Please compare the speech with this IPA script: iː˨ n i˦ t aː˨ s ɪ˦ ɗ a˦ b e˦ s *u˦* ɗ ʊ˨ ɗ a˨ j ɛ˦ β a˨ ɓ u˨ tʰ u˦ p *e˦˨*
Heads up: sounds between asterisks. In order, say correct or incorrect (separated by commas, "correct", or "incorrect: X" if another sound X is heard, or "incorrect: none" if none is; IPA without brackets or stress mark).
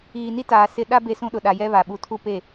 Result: incorrect: ũ˦, correct